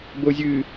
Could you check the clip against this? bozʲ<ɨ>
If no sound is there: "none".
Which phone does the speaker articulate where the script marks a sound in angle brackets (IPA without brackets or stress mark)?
ɨ